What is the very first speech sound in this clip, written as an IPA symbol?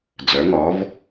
d͡z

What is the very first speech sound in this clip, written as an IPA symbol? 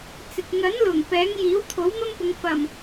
t͡s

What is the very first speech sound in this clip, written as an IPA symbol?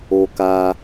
o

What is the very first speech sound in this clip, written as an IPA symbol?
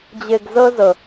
d͡ʑ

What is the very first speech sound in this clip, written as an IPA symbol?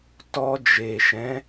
t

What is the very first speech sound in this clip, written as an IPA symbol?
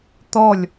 t̪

